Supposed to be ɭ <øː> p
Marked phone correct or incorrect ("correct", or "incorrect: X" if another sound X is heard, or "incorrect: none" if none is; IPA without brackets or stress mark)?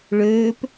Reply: correct